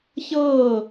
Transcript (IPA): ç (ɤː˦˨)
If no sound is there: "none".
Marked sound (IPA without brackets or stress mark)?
ɤː˦˨